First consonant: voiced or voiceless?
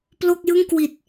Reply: voiceless